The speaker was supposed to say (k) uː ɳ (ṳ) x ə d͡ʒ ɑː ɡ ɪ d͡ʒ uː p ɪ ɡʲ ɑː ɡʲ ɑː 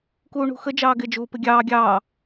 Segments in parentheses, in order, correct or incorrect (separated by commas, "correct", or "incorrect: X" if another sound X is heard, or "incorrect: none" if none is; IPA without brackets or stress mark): correct, correct